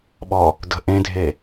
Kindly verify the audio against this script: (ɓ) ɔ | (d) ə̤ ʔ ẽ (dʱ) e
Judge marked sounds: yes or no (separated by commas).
yes, yes, yes